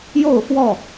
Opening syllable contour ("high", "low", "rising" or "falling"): falling